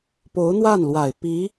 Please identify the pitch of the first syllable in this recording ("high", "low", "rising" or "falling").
rising